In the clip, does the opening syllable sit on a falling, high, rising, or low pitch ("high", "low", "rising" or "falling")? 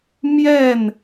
falling